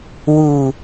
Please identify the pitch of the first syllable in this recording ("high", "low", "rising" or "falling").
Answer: low